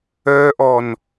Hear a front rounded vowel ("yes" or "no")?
yes